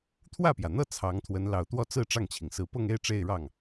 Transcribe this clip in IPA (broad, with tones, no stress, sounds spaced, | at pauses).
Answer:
t̪ʰ w ä˥˩ p j ä˩ n̪ ɤ˥˩ t͡sʰ ɑ˧˥ ŋ t̪ʰ w ə˧˥ n l ɑ˨˩ ʊ̯ t̪ w ɔ˥˧ t͡s ɹ̩˥˧ ʈ͡ʂ ɑ˥˩ ŋ t͡ɕʰ i˩ ŋ s ɹ̩˧˥ p ɤ˥˧ ŋ e˥˧ ɪ̯ ʈ͡ʂ e˥˧ ɪ̯ ɻ ɑ˥˩ ŋ